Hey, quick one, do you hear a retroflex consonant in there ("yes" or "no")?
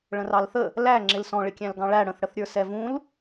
yes